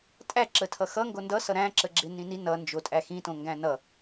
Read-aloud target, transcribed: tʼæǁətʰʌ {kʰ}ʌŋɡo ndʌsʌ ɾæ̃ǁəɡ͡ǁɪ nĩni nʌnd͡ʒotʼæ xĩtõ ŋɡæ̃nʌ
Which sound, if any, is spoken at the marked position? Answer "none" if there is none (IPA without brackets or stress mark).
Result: x